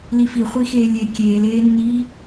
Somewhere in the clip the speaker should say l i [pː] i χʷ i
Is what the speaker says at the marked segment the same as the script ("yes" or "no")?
no